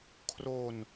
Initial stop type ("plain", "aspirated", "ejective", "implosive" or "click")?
aspirated